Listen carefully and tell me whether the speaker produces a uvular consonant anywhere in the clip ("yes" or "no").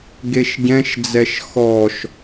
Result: no